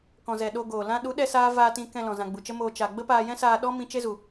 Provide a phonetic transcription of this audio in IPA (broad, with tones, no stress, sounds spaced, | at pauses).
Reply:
k ɔ̃˨ z ɛ˨ ɗ o˧ ɡ oː˨ l ã˦ ɗ u˨˦ ɗ ɛ˧ s aː˦ v aː˧ t ĩ˧ k ɛ̃˧ l ɔ̃˨ z ã˨ ɡ͡b u˨ t͡ʃ ə˦ m oː˧ t͡ʃ a˨ ɡ͡b ə˦ p aː˧ j ɛ̃˦ s aː˧ ɗ ɔ˦ m ĩ˦ t͡ʃ e˦ z u˨